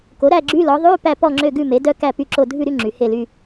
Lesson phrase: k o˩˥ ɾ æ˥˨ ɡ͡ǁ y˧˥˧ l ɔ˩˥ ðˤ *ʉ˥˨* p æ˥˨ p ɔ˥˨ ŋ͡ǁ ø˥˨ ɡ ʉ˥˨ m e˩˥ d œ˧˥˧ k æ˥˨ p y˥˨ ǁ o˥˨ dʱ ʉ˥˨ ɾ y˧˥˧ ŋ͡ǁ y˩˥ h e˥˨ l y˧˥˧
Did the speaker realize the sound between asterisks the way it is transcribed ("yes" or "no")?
no